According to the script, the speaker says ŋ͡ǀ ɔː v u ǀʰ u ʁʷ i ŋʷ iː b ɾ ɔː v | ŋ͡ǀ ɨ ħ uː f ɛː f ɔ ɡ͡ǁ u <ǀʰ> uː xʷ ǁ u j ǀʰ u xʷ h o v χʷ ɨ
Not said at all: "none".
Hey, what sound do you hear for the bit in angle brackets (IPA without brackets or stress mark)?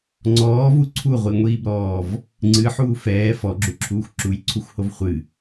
ǁʰ